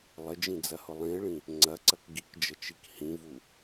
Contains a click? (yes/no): yes